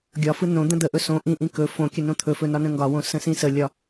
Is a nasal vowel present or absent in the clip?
present